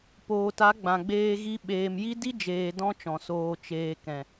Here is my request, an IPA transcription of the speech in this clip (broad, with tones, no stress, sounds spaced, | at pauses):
p oː˨ t a˨˦ ɡ͡b ã˨ ɡ͡b eː˧ ɣ i˧ ɓ eː˨ m j i˦ d i˦ d͡ʒ eː˧ d ɔ̃˦ t͡ʃ ɔ̃˨ s oː˨ t͡ʃ eː˨ k ɛ̃˨